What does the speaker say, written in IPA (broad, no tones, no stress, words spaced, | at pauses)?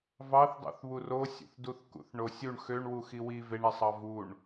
vɑθdˤṵθ βurosʲṵθduθ kṵθɳosʲuɳ xøɳwu xiwi veɳesˤɑ vuɳ